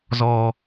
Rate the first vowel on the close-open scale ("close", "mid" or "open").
mid